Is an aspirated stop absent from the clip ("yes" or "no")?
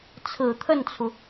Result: no